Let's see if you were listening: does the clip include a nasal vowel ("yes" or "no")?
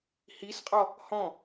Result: yes